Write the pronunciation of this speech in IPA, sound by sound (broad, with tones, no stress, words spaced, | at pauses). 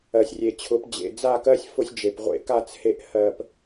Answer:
ɜ˨sʲrʲe˨t͡ɕʰʊ˨˦p d͡ʑḛ˨d͡za˦˨kɜ˦sʲ fʊ˦sʲd͡ʒe˨pʁʷḛ˦ ka˦˨t͡she˧ʔ hɜ˨p